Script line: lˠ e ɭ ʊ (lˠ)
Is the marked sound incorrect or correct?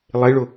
incorrect